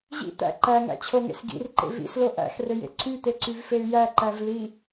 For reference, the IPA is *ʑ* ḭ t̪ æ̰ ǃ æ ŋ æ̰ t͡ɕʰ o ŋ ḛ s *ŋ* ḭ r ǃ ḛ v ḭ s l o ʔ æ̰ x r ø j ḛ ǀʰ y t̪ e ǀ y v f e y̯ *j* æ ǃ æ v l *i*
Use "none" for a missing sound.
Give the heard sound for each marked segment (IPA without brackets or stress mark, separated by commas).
ʑ, ɡ, j, i